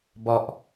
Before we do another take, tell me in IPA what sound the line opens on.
b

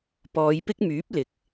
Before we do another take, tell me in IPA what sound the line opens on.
p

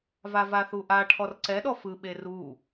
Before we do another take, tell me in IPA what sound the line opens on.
v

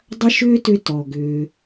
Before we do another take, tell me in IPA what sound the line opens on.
dˤ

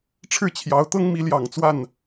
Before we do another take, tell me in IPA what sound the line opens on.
ʈ͡ʂʰ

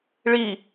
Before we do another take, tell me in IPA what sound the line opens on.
ɭ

